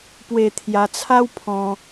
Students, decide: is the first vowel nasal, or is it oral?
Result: oral